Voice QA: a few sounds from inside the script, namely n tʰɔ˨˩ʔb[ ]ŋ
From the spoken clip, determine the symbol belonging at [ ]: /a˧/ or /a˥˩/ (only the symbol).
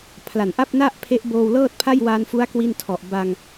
a˧